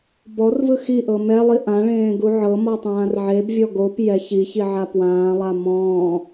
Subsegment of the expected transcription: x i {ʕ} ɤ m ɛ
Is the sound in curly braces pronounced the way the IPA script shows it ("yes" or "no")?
no